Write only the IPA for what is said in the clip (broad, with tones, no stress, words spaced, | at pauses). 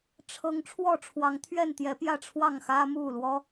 ʈ͡ʂʰɤ˨˦ŋ ʈ͡ʂʰwɔ˥˨ʈ͡ʂʰwɑ˨˦ŋt̪ʰɥɛ˥˨nt̪jɛ˨˦ pjä˥˨ʈ͡ʂʰwɑ˥˨ŋ xä˦mu˥˨lwɔ˦